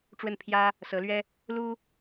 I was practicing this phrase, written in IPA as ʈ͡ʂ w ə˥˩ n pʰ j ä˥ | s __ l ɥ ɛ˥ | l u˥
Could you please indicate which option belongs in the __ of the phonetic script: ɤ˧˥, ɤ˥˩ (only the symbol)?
ɤ˧˥